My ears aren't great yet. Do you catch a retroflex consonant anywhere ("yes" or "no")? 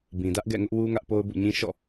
no